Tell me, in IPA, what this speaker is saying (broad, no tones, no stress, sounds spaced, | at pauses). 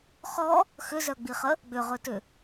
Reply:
χ ɔ | x ʏ z œ ɡ͡b i χ ə | ɡ͡b ʏ ʁ ɵ t ʏ